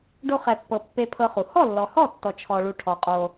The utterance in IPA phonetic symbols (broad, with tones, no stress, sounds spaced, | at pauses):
ɖ o˧ χ ɛ˨ pː ɤ˨ pː e˧ pʰ ɤ˧ χ u˨ h ɔ˦˨ lː ɔ˨ h ɔ˦˨ tː ɔ˧ t͡ʃʰ ɔ˧ ɭ u˧ ʈʰ ɔ˨ qʼ o˧